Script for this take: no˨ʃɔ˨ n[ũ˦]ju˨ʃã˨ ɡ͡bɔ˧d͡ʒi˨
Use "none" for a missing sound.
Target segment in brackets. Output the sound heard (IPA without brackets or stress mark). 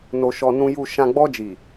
ũ˨